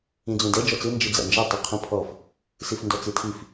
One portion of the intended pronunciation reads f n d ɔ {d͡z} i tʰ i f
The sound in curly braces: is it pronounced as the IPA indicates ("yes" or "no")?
no